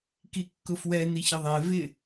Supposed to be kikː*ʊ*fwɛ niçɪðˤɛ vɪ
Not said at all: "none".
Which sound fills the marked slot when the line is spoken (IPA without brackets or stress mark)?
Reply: ʊ